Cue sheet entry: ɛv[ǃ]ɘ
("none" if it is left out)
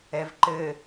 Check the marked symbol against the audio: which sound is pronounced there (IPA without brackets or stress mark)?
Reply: ǃ